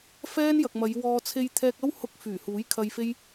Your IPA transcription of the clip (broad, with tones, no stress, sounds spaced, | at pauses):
f ɛː˥ n j ɐ˨ k̚ m ɐ˨˧ j w ɔː˧ t͡sʰ e˧ j t̪ʰ ɛː˧ k̚ ɐ˥ w h ʊ˧ k̚ f yː˨˩ h uː˨˥ j kʰ ɐ˧ j f e˥ j